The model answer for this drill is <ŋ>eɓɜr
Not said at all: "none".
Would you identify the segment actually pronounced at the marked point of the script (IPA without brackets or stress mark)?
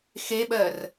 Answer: x